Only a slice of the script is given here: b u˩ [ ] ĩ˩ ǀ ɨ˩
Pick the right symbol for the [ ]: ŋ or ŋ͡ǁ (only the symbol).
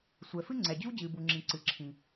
ŋ͡ǁ